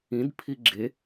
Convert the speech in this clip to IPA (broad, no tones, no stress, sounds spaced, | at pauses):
ĩ d pʰ i ɡ͡ǁ e